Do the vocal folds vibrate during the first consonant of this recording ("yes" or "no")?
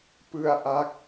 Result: no